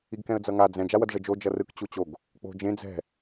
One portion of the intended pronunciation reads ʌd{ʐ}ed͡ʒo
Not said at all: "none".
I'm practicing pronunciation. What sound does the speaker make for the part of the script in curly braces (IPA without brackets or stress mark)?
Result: ʐ